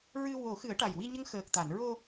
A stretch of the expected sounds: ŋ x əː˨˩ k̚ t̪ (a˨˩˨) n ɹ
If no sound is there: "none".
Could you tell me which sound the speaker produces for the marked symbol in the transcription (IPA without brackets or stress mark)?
a˨˩˨